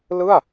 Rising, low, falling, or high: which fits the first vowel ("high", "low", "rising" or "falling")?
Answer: falling